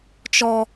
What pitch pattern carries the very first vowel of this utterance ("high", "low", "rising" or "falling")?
high